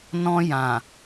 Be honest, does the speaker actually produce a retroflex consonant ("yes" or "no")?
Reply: no